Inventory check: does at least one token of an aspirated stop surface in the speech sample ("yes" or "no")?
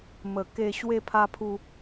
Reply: yes